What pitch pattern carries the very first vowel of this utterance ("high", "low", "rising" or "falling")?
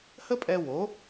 high